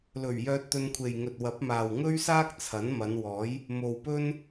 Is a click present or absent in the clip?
absent